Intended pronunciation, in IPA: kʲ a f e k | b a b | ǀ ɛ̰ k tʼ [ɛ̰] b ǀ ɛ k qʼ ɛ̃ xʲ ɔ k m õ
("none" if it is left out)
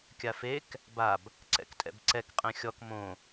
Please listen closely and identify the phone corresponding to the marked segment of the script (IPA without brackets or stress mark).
ɛ̰